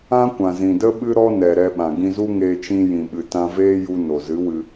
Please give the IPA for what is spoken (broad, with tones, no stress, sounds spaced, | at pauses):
ã˦ kʷ ã˨ z ĩ˨ d ə˦ ɓ ɨ˦ ɾ ɔ˦ n ɛ˨ ɾ ɛ˧ ɓ ã˨ ɡ ĩ˧ z u˦ ŋ eː˧ t͡ʃ ĩ˧ j ĩ˨ ɓ ɨ˨ t ã˧ v eː˦ j u˧ n o˨ z ɨ˨˦ w ɨ˧